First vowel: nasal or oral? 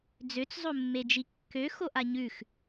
oral